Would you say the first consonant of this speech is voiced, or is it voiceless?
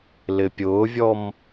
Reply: voiced